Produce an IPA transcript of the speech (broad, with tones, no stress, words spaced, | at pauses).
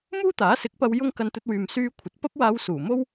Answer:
muː˥t̪aː˨˥sɪ˨˥k̚pɐ˧w jʊ˥ŋ kɐ˧nt̪ɵ˧t̚wyː˨m syː˧ kʷʰɐ˨t̚pɐ˥p̚waː˧w suː˨˩mo˥w